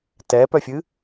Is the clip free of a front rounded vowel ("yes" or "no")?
no